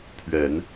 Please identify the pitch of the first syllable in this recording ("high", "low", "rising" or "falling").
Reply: low